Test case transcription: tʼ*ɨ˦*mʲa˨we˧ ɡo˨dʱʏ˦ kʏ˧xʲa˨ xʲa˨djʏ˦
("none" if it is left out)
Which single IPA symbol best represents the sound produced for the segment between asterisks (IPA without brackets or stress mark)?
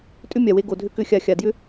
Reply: ʏ˦